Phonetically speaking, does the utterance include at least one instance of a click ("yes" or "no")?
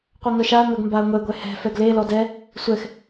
no